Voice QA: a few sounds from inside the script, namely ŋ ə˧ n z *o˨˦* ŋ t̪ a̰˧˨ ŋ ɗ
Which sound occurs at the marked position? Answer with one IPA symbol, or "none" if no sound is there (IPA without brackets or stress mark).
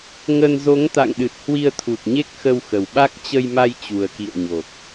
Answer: o˨˦